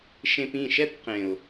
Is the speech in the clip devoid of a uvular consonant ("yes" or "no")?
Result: no